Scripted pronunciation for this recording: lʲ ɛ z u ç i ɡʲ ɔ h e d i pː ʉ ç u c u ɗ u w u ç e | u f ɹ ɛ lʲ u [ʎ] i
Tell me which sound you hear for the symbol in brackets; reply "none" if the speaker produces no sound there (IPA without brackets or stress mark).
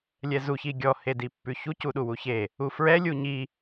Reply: ɲ